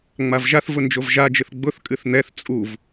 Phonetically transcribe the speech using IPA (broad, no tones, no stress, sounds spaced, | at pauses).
ŋ͡m a v ʒ a θ v ʊ n d͡ʒ o v ʒ a d͡ʒ ɨ θ ɡ͡b ʊ θ kʼ ɨ θ n̪ ɛ θ t͡sʼ u v